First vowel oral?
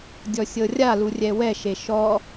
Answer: yes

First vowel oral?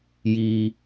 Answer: yes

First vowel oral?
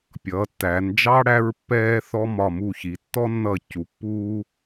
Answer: yes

